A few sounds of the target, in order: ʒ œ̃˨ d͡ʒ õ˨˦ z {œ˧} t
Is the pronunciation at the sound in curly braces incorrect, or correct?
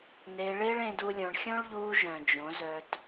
correct